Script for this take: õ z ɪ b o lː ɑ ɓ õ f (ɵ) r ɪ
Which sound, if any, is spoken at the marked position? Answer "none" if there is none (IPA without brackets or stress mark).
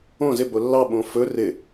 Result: ɵ